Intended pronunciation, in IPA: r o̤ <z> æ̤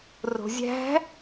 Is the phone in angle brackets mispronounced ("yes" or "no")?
yes